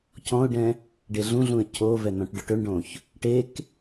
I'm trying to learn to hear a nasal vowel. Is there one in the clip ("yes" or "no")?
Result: yes